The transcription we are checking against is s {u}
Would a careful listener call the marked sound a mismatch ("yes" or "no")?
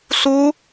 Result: no